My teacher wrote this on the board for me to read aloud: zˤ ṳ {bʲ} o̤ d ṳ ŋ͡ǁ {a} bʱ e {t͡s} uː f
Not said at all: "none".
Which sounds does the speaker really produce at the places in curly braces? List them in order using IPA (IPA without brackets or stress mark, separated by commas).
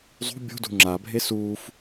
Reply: bʲ, a, s